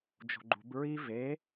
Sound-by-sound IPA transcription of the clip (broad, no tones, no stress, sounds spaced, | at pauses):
d͡ʒ o̤ ɡ͡ǃ ṳ b ɹ i v e